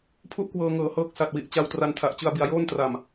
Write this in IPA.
pʰ u˥˩ ʔ k w ɤː˧ ŋ ɤː˨˩ h ɤː˦˥ k̚ s a˨˩ t̚ w i˨˩ ʔ t͡ɕ a˧ w t r a˧ n tʰ a˨˩ ʔ t͡ɕ ɯ˧ a̯ b i˧ a̯ j oː˥˩ n t r a˨˩ m

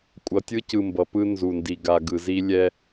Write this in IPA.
kʷʼ ʌ˨ tʲ ɯ˦ c ɯ˨ m b ʌ˨ p ɯ˦ n z u˨ n d i˨ ɡ a˨ ɡ ɯ˨ z i˦ lʲ ɛ˦

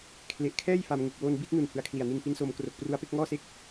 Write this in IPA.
kʰ l e˨˩ ʔ kʰ ɛː˥˩ j f a˧ m ŋ u˨˩ k̚ w oː˧ n b i˥˩ t̚ n u˨˩ n h ɯ˨˩ a̯ kʰ l i˨˩ a̯ n i˧ n p i˦˥ n s oː˧ m k r o˨˩ k̚ p r u˦˥ a̯ p e˥˩ k̚ ŋ ɔː˥˩ s e˥˩ k̚

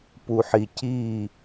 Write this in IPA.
p u˨ ħ i˨ c iː˦˨

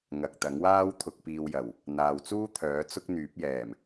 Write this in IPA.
ŋ ɐ˨ k̚ t̪ ɐ˨˥ ŋ w aː˥ w t̪ʰ ʊ˨ k̚ p iː˨ w j ɐ˨˩ w | n̪ aː˨ w t͡s uː˥ t̪ʰ œː˨˥ t͡s ʊ˥ k̚ n̪ yː˨˥ p̚ j ɛː˨˩ m

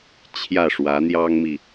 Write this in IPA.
t͡ɕʰ j ä˥˩ ʂ w ä˧˥ n̪ j ɑ˥ ŋ m i˨

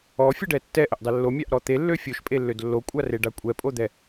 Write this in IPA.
ɔ fʲ ə ɖ ɛ tː ɛ ʔ ə ʔ dˤ ɛ lː o mʲ a ʔ ɾ ɔ t̪ e lː ø fʲ o ʃ pʼ e lː ø d lː o kʷʼ a r e ɖ a kʷʼ ɛ pʼ o d̪ ɛ

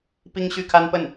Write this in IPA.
p i˥ ŋ ɕ y˥˩ kʰ a˥ n p ə˥˩ n

